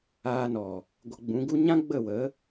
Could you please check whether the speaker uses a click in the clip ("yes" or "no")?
no